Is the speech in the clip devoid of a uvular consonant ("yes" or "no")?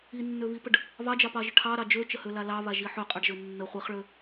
no